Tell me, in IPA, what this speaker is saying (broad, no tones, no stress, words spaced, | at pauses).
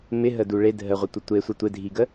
mɪɦədu ɭe dʱəʁʷɪtʷə tʷesʷɪ tʷɪdʱiɡə